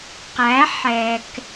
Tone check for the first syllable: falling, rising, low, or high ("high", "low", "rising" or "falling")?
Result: rising